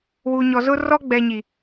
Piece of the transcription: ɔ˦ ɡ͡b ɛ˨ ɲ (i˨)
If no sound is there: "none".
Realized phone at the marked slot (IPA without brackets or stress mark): i˨